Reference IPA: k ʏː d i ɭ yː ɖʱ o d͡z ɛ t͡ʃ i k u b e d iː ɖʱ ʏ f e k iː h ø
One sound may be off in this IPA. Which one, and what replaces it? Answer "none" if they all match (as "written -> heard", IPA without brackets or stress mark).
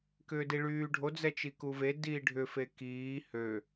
b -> v